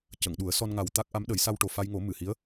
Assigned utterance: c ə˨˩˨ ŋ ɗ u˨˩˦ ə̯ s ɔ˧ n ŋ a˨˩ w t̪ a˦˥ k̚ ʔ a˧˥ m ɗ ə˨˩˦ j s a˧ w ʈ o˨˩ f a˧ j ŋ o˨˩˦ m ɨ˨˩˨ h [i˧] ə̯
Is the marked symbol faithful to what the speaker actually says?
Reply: no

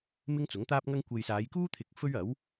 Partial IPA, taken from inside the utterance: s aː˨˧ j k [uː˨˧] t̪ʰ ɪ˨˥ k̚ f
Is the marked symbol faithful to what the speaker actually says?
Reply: no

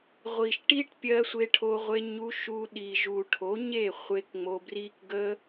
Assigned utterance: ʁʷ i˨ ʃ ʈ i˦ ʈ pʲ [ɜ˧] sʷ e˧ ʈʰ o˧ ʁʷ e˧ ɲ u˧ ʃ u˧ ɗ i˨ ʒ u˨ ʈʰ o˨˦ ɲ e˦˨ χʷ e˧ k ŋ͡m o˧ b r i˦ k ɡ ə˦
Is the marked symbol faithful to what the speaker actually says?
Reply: yes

